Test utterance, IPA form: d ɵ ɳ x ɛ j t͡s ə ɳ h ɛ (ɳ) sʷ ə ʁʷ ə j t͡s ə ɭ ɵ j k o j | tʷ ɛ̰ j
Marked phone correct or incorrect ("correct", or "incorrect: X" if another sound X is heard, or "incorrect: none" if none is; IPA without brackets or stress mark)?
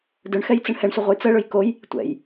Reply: correct